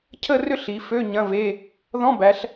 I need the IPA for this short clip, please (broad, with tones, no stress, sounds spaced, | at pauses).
cʰ ə˥˧ r ʏ˥˧ ɬ i˩˧ f ø˧˥˧ ɲ ɐ̃˧˥˧ v e˧˥˧ | ð ɔ̃˧˥˧ b æ˩˧ ɬ